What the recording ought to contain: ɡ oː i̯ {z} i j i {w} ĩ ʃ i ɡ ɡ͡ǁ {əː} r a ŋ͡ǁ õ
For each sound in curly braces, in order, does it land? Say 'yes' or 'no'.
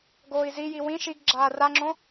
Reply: yes, yes, no

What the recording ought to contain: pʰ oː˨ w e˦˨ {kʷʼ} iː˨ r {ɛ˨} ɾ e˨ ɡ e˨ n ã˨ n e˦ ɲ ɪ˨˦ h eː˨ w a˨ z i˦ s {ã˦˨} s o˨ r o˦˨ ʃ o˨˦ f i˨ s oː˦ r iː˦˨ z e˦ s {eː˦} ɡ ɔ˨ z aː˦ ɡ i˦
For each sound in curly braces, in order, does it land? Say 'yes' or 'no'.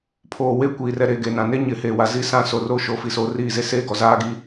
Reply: no, yes, yes, yes

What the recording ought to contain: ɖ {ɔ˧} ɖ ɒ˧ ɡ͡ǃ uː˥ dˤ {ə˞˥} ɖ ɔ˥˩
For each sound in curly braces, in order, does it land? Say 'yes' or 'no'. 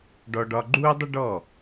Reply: yes, no

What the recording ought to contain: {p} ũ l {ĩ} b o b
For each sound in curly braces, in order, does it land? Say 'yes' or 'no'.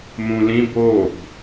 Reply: no, yes

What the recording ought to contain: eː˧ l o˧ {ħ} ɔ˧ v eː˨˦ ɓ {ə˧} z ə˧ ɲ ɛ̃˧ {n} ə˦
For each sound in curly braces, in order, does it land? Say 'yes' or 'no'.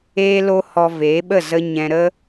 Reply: no, no, no

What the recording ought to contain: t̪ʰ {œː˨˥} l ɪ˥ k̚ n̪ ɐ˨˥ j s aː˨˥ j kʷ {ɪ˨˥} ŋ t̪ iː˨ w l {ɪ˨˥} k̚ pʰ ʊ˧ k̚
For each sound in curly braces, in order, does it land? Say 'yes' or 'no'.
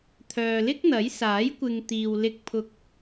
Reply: no, no, no

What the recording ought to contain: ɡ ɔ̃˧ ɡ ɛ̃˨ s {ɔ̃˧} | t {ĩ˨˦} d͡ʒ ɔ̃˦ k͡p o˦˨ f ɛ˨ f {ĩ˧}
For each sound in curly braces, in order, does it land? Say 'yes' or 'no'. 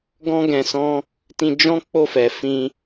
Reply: yes, no, yes

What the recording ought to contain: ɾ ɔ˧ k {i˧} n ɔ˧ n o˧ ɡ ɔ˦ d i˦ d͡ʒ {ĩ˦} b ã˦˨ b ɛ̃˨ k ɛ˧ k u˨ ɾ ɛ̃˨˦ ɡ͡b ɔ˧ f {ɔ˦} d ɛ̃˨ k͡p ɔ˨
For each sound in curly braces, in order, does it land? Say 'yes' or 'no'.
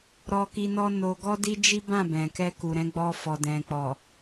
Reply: yes, no, no

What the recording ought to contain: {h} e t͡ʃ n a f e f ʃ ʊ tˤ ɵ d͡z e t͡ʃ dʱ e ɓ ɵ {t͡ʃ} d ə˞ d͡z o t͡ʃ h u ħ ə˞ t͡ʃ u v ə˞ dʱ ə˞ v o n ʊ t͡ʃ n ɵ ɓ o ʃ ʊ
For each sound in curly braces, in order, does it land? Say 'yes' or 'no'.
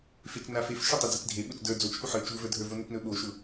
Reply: no, yes

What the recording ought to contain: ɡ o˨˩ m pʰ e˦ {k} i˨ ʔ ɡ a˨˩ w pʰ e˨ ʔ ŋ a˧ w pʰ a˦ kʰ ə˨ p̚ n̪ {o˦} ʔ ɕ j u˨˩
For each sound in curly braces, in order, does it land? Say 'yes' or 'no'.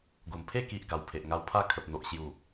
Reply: yes, no

